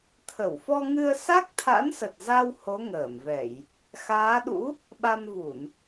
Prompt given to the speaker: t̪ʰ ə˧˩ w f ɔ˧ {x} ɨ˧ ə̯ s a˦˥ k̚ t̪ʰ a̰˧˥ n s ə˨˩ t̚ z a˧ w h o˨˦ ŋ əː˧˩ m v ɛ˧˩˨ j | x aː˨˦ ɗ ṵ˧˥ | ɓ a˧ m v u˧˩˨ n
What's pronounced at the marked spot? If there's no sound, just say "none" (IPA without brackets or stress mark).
ŋ